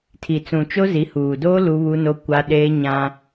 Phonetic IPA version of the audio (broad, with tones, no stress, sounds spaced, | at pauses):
tʰ i˨ t͡s ũ˨ t͡ʃ o˦ z i˨˦ h uː˨ d oː˦ l u˦ β u˦ n o˦ kʷ a˦ ɗ eː˦ ɲ ã˦